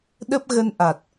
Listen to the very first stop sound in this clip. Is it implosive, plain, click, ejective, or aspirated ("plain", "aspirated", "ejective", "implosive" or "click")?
implosive